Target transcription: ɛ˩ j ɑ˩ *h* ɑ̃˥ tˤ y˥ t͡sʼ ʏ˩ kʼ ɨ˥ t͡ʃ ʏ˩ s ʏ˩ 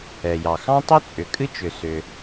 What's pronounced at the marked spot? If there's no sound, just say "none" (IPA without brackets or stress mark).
x